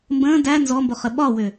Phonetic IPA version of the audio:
m b ə̃ː d æ n z ɔ m b o χ ə ɓ ɒ w ʏ

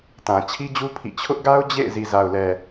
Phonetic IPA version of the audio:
t ã˨ t͡ɕʰ i˦ d͡ʑ u˦ pʰ ḭ˦˨ t͡ɕʰ ʊ˦ ʔ ɡ a˦ ʊ̯ d͡ʑ ḛ˦˨ ɪ̯ z i˨ z a˨ ʊ̯ l ɛ˨

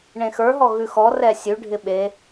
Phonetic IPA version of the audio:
ɳ ẽ x ə˞ ɦ ɔ ɣ ʉ x ɔ r ɛ sʲ ʉ ɖʱ ɪ ɓ e

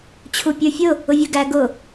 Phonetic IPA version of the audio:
t͡ɕʰ u pʲ ə˞ fʲ ʊ | ʊ vʲ ə˞ ɡ æ ɡ ʊ

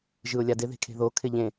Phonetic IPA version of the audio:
ʒ ɯ ʊ̯ lʲ a d ɪ ð e̤ kʰ e̤ ð o kʰ ɪ ʎ ẽ

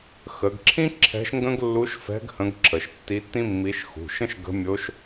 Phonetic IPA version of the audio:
x ə˩˧ ɡ ǁʰ ĩ˥ ǁʰ ɛ̤˧˥ ʃ ŋ ɡ ə̃˥ ɡ lː u˧˥ ʃ f ɛ̤˧˥ ɡ h ə̃˧˥ ɡ ǁʰ ə˩˧ ʃ tː i˧˥ tː ĩ˥ mː i˧˥ ʃ x ṳ˩˧˩ ʃ ə̃˥ ʃ ɡ ə̤˧˥ mʲ o˧˥ ʃ

